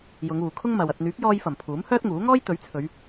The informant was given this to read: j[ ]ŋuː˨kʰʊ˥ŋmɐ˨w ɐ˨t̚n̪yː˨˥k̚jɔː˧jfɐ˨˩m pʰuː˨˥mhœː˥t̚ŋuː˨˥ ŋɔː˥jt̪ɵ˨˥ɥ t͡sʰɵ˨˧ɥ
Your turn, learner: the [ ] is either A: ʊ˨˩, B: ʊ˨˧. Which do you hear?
B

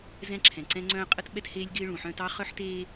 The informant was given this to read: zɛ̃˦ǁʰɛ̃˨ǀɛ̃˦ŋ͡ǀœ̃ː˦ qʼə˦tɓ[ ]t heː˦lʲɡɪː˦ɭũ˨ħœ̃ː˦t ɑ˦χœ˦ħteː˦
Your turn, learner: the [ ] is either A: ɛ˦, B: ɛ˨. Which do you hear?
A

